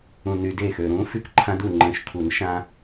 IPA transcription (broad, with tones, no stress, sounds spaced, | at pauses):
ũ˨˩ n y˨˩ d eː˥˩ x ø˨˩ ɾ ũː˨˥ f y˥˩ k ǃʰ ã˦ d u˥˩ ŋ͡ǃ ə̃ː˨˥ ʃ kʰ u˨˩˦ n ʃ ã˦